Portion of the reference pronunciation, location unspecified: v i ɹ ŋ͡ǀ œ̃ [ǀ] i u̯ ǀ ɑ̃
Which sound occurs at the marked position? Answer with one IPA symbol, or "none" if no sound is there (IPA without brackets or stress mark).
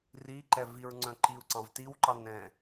ǃ